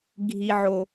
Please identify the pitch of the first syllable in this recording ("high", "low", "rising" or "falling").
low